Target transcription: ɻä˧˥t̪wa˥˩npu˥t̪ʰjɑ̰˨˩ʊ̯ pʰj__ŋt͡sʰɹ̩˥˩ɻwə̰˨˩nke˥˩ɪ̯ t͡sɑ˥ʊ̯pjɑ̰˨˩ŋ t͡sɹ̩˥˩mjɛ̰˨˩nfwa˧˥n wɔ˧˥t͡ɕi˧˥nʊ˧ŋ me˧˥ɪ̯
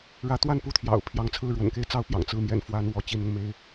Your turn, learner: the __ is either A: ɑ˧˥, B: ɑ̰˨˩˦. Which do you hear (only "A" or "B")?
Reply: A